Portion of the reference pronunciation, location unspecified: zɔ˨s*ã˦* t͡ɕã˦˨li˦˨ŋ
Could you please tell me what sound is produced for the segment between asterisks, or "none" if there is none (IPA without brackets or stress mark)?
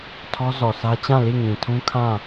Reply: ä˦